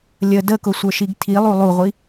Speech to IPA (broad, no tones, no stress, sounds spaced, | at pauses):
lʲ ə d ə k ʊ sʷ ə˞ ʃ i ɡ tʰ i lˠ u lˠ u ʁʷ i